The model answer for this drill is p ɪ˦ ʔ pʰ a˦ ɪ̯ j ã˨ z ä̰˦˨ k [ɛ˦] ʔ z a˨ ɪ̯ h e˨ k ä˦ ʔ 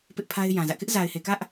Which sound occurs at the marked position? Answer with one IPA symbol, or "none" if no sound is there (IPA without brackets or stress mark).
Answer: ɪ˦